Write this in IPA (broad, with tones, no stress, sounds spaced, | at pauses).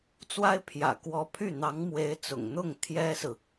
t͡s w a˥ ɪ̯ pʰ j ä̰˨˩ k w ɔ˧˥ pʰ y˥˩ n̪ ɑ˧˥ ŋ m w e˧˥ ɪ̯ t͡s ʊ̰˨˩ ŋ n̪ ʊ˥˩ ŋ t̪ʰ j ɛ˥ s ɹ̩˨